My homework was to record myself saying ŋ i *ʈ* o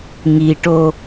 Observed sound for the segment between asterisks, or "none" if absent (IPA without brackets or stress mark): ʈ